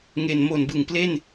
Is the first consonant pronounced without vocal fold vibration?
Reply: no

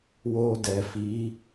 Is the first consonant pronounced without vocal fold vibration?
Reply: no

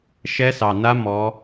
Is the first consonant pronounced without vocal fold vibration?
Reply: yes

